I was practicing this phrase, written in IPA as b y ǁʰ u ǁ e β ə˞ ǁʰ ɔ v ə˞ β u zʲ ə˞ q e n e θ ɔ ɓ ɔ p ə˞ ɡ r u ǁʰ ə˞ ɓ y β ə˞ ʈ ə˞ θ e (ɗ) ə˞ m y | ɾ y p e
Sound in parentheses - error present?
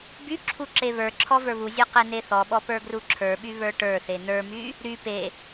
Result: yes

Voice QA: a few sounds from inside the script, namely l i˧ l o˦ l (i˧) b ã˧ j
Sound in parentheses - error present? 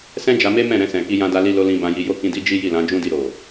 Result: yes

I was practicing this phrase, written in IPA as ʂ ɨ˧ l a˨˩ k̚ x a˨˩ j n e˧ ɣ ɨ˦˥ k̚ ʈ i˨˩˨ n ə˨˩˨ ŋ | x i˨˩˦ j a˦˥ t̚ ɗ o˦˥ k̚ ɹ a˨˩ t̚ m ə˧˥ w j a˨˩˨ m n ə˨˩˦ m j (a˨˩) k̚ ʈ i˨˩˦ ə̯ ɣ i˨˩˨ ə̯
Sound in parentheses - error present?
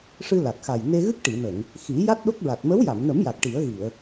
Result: no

